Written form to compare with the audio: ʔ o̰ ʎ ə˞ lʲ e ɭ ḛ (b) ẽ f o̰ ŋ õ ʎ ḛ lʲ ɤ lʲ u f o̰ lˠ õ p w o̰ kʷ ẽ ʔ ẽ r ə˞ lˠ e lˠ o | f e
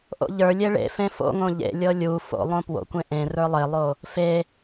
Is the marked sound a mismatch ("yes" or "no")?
yes